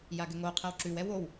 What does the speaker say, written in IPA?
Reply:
j a ɡ ɘ ŋ o qʰ ɛ w ǁ ʉ w ɛ w o w

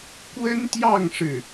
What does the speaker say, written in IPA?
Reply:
k w ə˥ n t̪ j ɑ˥˧ ŋ ʂ ɻ̩˥˩

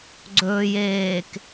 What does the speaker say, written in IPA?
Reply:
ɡ͡ǀ ɵː j eː k

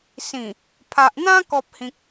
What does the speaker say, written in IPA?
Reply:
s ĩ˨˩ | pʰ a˨ ʔ n̪ ã˦ k ɔ˦ p̚ h ĩ˦ k̚

